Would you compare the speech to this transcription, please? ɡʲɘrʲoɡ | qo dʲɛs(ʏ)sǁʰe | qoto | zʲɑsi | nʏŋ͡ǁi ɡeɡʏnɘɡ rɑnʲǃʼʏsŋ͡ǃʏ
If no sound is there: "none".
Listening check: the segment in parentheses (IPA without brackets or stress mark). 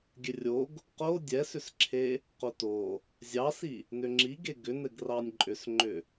ʏ